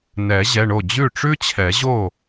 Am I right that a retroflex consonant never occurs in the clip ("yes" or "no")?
no